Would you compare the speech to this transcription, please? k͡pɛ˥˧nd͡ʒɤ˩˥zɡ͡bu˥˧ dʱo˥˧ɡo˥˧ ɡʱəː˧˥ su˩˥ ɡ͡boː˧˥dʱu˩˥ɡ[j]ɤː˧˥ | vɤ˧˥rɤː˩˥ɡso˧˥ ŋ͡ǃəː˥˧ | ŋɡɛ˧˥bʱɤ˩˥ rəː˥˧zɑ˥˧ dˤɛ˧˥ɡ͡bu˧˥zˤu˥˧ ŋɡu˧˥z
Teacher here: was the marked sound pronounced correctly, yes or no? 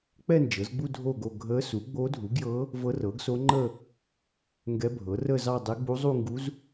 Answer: yes